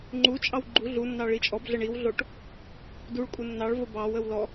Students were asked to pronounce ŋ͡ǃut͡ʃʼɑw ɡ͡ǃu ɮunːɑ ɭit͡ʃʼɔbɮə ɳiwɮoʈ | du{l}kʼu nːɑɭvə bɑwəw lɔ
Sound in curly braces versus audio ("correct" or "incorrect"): incorrect